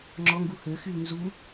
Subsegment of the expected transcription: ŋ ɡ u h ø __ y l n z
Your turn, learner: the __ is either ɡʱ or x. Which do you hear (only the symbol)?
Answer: x